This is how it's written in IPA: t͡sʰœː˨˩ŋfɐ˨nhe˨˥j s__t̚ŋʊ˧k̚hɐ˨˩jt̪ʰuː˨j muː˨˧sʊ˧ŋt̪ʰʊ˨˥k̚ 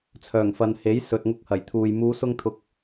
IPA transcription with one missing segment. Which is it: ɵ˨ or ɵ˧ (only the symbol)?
ɵ˨